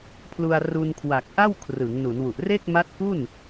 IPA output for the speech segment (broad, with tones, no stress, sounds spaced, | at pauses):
pʰ l u˧ a̯ r u˧ n kʰ w a˨˩ k̚ ʔ a˥˩ w kʰ r ɯ˩˦ ŋ n u˩˦ n w u˨˩ ʔ r e˥˩ k̚ m a˦˥ t̚ k u˥˩ n